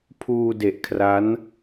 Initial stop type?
aspirated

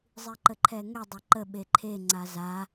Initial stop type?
click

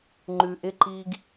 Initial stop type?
click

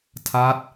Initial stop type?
aspirated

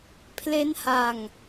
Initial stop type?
aspirated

